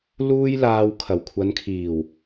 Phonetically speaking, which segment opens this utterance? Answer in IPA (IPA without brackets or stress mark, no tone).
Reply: l